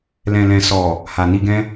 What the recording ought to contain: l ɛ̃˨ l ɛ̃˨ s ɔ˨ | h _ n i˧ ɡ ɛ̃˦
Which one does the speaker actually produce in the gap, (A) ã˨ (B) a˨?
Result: B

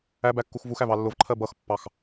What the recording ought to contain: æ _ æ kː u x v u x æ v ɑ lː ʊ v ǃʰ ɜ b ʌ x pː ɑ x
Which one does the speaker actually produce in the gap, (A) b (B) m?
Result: A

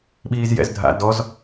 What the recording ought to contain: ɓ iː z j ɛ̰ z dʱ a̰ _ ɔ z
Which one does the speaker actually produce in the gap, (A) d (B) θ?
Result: A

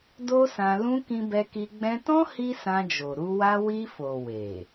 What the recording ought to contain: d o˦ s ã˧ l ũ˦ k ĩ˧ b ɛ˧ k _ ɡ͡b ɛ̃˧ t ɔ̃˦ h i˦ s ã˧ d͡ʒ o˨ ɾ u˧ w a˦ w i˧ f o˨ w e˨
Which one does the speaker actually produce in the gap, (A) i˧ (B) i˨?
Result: A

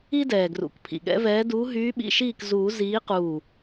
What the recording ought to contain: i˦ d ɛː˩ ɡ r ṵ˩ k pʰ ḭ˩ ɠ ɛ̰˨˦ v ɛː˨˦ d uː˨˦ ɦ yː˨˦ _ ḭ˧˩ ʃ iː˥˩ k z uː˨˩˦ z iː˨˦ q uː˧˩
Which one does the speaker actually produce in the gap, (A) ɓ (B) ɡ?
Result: A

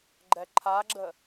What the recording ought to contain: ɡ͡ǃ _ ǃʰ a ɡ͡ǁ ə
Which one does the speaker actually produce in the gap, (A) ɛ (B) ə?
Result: A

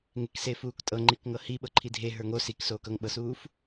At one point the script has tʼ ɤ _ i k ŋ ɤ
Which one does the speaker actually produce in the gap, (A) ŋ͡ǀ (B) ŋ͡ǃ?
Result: B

